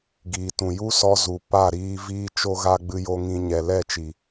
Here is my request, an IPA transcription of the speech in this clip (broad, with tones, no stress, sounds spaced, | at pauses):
ɡ iː˨ t ũ˨ j u˦ s ɔ˧ z u˨ p a˦˨ ɾ iː˧ v iː˧ t͡ʃ o˧ ɣ a˧ ɡ͡b ɨ˧ j o˧ ŋ ĩ˧ ɲ ɛ˨ l ɛ˦˨ t͡ʃ i˨